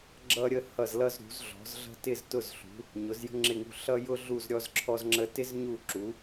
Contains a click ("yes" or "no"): yes